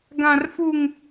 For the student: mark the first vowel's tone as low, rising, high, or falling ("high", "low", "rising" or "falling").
high